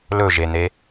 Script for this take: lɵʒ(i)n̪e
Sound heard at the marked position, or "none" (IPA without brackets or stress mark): e